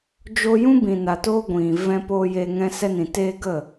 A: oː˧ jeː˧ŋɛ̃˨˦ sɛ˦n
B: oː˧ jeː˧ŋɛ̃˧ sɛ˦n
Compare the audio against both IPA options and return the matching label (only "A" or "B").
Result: B